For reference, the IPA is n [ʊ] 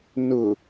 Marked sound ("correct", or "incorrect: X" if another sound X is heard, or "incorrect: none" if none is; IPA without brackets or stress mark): correct